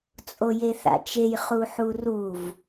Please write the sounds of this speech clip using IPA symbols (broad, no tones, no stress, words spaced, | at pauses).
t͡sʼojeθa̰t͡ʃej χuħuruv